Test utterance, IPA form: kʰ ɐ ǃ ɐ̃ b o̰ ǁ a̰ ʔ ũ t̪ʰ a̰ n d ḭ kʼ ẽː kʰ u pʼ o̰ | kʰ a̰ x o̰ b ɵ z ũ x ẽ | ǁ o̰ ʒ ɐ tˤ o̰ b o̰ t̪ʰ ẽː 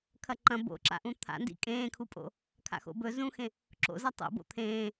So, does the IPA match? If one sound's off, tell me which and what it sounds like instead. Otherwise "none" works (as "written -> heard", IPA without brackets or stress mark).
ʒ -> z